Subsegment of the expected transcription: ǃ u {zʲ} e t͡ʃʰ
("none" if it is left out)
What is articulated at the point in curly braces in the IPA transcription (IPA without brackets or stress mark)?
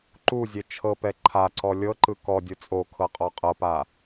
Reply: zʲ